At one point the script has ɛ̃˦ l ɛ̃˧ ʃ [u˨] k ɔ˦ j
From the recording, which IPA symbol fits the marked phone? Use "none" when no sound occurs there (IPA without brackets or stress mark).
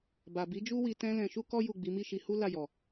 u˦